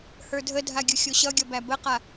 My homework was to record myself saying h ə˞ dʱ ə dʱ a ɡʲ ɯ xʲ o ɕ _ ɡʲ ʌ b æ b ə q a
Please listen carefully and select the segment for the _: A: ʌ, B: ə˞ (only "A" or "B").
A